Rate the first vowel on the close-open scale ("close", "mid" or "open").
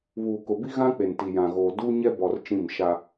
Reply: close